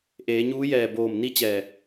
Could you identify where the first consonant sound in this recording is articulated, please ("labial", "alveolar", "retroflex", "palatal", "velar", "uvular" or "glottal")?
glottal